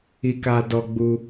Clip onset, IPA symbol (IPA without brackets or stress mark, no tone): i